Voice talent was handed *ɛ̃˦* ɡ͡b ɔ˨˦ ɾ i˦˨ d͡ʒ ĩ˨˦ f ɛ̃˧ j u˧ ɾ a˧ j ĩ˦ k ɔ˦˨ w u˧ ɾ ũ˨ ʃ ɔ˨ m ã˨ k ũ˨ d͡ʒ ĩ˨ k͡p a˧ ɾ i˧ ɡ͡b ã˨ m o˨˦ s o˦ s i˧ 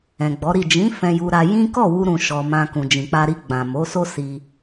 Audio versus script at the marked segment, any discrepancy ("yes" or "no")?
yes